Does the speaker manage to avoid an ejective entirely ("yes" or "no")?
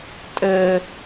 no